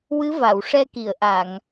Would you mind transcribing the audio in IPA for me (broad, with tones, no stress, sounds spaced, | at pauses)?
w ɨ˧˥ v a˨˩˨ w ʂ ɛ˧ k i˨˩˨ ə̯ ʔ a˨˩˨ ŋ